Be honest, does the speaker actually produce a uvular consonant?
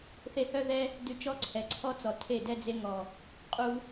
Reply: yes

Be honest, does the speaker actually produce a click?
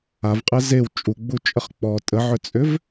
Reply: no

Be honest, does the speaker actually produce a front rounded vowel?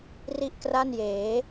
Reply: no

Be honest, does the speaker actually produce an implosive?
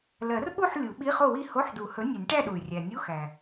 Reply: yes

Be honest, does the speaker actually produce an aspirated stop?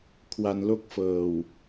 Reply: yes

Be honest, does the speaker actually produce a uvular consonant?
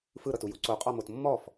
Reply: yes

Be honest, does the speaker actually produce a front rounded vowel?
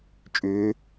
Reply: yes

